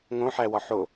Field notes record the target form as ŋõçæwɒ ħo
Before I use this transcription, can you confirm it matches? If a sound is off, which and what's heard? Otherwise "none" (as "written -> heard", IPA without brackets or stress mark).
ç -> ħ